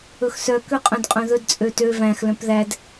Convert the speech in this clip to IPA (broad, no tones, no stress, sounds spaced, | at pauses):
ɵ x s œ k ø qʼ œ̃ d qʼ œ̃ ð ɵ d t͡sʼ ø t ø v æ̃ x l œ̃ p ð æ d